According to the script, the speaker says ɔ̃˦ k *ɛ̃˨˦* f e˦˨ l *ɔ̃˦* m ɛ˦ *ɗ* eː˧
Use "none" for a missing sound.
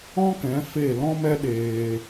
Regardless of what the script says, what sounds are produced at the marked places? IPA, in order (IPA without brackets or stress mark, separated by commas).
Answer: ɛ̃˨˦, ɔ̃˦, ɗ